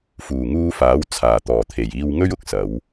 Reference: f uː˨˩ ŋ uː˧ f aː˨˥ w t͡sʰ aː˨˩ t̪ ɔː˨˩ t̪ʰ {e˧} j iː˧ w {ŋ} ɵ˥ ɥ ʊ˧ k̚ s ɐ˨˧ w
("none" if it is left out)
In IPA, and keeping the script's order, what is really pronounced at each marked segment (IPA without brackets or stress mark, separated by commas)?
e˨˩, ŋ